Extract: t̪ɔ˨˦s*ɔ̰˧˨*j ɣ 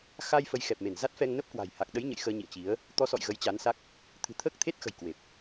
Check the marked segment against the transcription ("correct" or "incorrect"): correct